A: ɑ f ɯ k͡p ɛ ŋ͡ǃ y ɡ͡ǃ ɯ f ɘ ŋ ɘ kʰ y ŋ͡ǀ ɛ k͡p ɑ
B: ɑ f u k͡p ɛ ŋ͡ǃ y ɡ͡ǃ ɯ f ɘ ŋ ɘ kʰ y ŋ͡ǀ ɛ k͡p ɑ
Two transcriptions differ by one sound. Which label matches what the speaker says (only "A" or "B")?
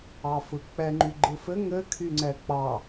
A